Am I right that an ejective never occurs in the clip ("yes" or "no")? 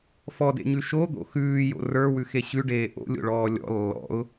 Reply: yes